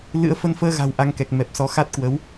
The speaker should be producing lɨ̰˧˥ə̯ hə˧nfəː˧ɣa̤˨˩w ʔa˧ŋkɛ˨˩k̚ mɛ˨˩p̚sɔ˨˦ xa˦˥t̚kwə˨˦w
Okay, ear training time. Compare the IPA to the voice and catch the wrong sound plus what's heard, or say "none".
h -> f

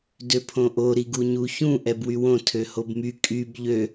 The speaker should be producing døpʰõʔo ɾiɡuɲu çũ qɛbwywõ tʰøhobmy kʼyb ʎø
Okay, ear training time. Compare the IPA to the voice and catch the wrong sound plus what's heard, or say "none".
q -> ʔ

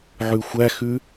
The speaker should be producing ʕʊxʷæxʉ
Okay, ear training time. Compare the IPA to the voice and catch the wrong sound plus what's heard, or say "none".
ʊ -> ʉ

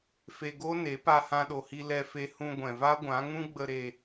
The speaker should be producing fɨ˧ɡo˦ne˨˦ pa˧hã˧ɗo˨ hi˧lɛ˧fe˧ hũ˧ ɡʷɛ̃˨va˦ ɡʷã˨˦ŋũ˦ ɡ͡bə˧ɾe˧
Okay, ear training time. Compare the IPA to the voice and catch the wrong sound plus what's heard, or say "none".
ɨ˧ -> e˧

